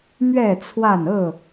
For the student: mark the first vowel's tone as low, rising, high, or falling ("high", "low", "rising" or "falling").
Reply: falling